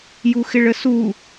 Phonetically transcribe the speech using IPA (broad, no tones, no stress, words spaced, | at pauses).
juxɪɭəsu